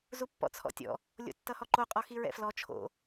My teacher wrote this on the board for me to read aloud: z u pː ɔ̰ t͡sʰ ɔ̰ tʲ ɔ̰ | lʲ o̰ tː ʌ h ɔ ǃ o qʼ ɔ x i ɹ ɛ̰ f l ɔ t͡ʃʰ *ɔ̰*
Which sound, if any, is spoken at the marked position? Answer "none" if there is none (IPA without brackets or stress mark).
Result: o̰